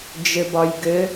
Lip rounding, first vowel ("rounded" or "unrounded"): unrounded